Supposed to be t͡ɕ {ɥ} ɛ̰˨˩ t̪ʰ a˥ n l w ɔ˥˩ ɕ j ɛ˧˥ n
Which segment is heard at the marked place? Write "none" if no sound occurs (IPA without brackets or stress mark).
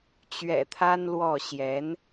ɥ